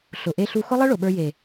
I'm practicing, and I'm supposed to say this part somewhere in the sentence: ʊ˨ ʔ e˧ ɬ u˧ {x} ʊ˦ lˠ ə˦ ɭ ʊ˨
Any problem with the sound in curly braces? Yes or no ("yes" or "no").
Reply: no